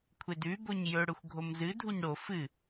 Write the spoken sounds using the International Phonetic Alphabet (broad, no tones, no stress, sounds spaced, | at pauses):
kʷʰ e d ʉ b o ɲ j ɵ ɽ ɵ xʷ ɡʱ o m z ɨ dʱ u ɲ ɽ o f ɨ